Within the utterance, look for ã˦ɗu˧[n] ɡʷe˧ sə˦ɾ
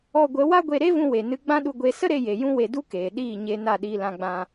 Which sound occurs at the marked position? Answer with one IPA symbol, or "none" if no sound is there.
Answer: none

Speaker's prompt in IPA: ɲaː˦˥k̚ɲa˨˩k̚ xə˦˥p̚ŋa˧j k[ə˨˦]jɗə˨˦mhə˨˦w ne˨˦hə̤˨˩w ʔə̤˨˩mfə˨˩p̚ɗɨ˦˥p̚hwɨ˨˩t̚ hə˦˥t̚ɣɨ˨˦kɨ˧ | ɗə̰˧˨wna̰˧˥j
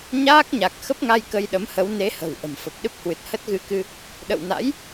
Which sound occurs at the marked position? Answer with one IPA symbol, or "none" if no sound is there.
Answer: ə˧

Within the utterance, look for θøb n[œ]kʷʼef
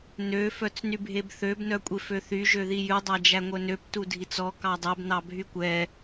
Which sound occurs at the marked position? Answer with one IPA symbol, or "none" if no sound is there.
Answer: œ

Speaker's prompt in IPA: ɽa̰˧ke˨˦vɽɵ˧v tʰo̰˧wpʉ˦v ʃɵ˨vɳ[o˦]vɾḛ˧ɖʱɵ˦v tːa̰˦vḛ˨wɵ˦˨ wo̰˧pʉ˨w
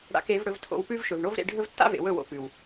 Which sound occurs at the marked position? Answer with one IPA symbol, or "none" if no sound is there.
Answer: o˦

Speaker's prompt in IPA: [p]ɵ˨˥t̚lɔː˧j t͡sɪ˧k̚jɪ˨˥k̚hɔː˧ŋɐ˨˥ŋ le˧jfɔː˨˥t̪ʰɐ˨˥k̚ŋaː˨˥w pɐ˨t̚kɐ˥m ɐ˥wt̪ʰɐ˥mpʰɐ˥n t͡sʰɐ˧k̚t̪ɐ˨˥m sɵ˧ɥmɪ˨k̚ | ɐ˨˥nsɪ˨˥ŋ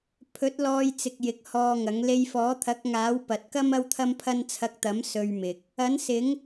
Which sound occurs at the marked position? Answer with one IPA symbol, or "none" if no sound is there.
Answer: pʰ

